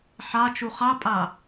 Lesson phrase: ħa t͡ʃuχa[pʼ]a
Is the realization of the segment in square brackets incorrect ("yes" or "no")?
no